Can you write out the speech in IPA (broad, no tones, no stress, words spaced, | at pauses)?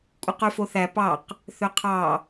kʷʼɯqyfoθæ pɑq | θøqʰɑ